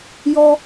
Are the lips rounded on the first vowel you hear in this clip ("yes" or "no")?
yes